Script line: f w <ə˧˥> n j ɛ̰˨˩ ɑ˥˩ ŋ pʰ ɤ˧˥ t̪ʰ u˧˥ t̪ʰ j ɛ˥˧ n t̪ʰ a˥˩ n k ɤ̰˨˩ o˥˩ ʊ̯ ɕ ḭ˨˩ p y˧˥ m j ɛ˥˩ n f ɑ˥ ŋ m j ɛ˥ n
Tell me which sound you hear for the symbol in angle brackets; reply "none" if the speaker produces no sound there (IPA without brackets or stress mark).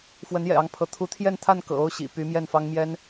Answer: ə˧˥